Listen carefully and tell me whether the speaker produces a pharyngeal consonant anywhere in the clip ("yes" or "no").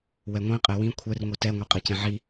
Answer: yes